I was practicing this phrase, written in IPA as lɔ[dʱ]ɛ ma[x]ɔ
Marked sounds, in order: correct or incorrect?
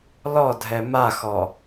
correct, correct

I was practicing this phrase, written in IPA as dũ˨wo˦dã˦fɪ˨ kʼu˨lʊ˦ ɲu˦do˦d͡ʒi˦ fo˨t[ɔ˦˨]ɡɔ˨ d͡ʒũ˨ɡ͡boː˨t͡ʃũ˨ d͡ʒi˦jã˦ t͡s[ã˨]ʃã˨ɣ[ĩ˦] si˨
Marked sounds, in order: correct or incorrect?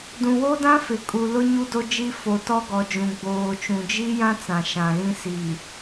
incorrect: ɔ˦, correct, correct

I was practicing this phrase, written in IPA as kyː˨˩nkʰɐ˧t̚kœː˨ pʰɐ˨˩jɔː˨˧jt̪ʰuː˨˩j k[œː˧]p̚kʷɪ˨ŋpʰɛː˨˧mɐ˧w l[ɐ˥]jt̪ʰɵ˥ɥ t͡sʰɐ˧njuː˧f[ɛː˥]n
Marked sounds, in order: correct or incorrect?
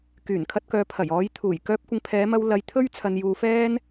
correct, incorrect: ɐ˧, correct

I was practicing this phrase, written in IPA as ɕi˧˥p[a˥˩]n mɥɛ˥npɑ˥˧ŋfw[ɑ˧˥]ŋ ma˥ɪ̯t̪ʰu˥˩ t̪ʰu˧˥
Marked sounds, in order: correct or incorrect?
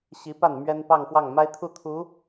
correct, incorrect: ɑ˥˩

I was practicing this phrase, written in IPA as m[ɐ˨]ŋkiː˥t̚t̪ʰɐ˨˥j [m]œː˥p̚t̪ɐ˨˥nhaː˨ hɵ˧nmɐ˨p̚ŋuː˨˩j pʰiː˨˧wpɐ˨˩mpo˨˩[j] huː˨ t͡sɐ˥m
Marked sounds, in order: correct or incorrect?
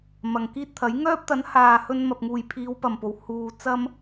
correct, incorrect: ŋ, incorrect: w

